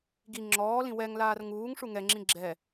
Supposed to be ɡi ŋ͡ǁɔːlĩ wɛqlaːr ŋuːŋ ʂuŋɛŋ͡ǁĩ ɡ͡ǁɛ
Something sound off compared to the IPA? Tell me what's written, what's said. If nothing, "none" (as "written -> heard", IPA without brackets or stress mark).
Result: q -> ŋ